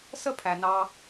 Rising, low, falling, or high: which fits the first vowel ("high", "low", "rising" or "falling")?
high